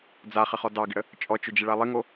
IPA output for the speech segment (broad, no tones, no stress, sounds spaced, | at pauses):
d͡z a χ ɪ χ ɔ d ɑ ɡ ɪ ɽ ə | t͡ʃʼ ɔ t͡ʃ ʊ d͡ʒ ɪ ɭ a lˠ ɪ ŋ o